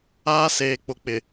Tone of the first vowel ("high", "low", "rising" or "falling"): high